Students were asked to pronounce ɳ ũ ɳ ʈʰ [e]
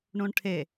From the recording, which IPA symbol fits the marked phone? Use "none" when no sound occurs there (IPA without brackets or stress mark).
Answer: e